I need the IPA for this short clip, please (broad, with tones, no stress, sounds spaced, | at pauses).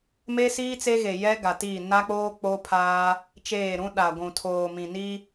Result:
m e˦ s iː˦ t͡s e˦ ɣ e˨ j ɛ˦ ɡ a˨ t iː˦˨ n a˦ k͡p oː˦ k͡p o˦ pʰ aː˦ | t͡ʃ eː˦˨ ɾ ũ˦ ɗ a˨ ɡʷ ũ˨ tʰ oː˨ m ĩ˨ n i˦